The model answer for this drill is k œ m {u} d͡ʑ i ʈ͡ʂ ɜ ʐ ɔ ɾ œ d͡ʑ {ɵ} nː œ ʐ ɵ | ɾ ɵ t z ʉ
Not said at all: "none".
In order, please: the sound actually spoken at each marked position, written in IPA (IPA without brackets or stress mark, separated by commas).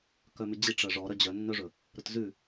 ʉ, œ